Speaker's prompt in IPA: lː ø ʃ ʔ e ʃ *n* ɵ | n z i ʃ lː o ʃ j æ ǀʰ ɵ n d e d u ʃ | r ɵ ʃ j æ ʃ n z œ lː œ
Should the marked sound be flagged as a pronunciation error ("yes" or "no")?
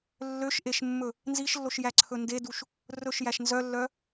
yes